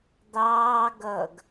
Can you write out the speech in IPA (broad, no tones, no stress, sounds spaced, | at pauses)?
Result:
d̪ ɑː ɡ ʌ ɡ